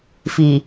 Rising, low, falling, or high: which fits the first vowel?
low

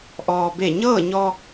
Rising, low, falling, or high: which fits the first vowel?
low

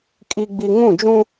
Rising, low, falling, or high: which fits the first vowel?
low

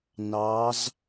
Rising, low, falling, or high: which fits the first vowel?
rising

